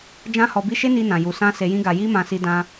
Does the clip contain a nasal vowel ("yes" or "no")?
yes